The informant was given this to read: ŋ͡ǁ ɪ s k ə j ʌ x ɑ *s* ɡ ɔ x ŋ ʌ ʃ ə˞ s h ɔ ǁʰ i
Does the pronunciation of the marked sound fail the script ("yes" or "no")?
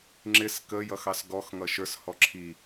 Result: no